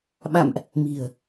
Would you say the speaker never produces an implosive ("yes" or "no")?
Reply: no